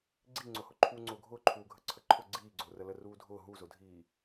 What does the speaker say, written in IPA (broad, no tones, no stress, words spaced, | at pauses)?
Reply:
ɡ͡ǀiŋ͡ǀʊhʊ ǃʰuːŋ͡ǀʊːɡʱʊːǃʰuː ɡʱəǀʰəǃʰʊ ɡ͡ǀiːɡ͡ǀʊːrə ləruːdʱʊː ɦuzʊdʱiː